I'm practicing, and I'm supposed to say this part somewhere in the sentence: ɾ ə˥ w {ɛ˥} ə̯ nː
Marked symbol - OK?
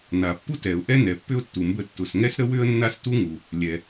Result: no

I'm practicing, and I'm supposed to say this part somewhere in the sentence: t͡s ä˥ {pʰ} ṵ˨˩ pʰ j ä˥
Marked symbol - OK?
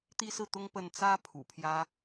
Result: yes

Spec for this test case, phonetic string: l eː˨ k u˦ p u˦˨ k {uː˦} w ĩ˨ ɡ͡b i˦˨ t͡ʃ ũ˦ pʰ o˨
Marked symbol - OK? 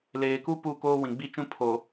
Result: no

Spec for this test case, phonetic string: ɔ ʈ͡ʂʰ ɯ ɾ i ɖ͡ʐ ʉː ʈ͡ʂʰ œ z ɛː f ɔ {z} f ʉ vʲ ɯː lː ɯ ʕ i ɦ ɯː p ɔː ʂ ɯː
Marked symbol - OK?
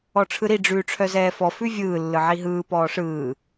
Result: no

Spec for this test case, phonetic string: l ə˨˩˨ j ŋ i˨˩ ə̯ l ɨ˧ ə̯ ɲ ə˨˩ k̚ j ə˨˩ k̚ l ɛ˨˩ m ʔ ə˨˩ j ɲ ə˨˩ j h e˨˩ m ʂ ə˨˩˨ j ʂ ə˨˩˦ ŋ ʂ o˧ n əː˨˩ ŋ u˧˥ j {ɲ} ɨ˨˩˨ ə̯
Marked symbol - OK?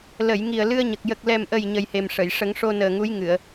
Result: no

